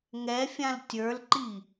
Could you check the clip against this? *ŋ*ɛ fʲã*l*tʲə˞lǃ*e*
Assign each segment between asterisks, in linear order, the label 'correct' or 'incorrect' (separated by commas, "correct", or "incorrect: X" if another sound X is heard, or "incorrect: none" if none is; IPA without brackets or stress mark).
correct, correct, incorrect: i